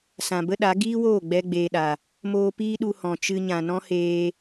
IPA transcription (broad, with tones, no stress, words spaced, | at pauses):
sã˨bə˦ɗa˨˦ ɡiː˦woː˦˨ ɡ͡bɛ˦ɡ͡beː˧ɗa˨ | moː˧piː˦ɗu˧ hɔ̃˨t͡ʃɨ˧ ɲã˨nɔ̃˦heː˧